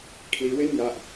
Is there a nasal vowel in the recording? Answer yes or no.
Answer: no